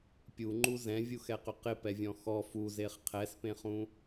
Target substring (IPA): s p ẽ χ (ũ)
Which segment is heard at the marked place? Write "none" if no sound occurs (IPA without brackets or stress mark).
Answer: ũ